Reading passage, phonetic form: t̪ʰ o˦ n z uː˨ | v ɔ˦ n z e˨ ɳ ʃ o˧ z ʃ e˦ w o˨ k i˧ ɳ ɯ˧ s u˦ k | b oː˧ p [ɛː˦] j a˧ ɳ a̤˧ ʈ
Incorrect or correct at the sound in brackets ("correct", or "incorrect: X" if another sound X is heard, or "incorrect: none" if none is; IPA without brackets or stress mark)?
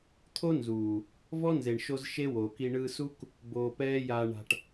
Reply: correct